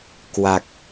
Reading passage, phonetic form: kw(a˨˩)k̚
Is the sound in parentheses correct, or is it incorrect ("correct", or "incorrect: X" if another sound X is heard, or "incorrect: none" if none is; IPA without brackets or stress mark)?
correct